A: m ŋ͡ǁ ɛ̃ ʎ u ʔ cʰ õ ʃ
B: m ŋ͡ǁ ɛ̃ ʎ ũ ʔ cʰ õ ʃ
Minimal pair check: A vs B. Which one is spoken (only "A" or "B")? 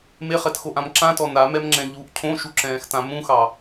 A